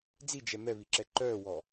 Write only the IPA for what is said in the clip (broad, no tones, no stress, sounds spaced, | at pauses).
d͡z i d͡ʒ ɛ m ɛ β i ǁ ɛ ǃ œː w ɔ